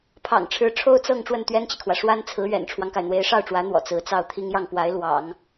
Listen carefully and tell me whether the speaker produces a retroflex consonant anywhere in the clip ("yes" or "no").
yes